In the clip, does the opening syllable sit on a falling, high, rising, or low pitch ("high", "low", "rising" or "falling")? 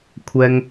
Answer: high